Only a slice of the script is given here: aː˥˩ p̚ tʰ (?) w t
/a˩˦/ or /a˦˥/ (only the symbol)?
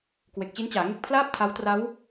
a˦˥